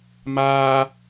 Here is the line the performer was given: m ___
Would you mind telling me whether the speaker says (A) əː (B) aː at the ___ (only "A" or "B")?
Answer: B